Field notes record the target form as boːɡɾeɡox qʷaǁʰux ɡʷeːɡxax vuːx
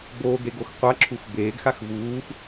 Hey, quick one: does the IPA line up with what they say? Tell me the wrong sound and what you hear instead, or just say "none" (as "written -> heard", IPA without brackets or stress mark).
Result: ɡʷ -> b